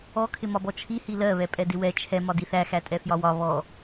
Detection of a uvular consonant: absent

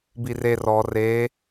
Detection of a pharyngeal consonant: absent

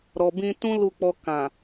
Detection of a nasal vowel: present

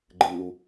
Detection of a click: present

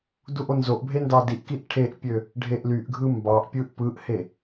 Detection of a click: absent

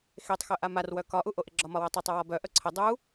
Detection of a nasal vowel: absent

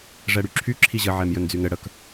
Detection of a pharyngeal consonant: present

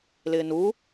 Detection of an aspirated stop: absent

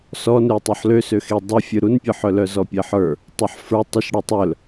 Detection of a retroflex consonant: present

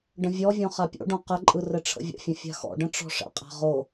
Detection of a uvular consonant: present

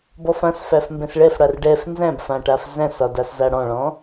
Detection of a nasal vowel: present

